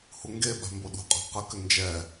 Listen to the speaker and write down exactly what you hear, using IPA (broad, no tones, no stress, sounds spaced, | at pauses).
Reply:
h u ŋ ɡ e ɓ a̤ m b o ɗ ṳ qʼ a̤ q ə k ʏ n d͡ʒ ɛ